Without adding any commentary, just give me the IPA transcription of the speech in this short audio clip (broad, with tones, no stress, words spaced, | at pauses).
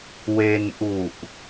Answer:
we˧nʔu˨˩ʔ